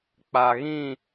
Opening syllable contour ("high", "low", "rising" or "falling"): low